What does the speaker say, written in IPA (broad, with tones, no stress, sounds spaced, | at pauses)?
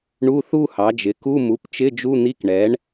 ɳ u˧˥˧ θ u˥˧ h ɑ˩˥ d͡ʒ ɪ˩˥ k u˧˥˧ m u˩˥ p t͡ʃ ɪ˧˥˧ d͡ʒ u˧˥˧ n̪ i˧˥˧ k ɳ ɛ˩˥ ɳ